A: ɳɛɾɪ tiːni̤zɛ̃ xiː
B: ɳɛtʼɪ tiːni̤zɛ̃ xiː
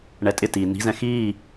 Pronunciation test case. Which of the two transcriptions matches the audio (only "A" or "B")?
B